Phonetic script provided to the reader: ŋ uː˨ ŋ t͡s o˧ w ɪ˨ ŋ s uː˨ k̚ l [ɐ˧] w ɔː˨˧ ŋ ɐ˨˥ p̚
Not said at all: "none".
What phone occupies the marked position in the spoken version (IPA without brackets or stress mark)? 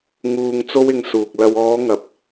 ɐ˧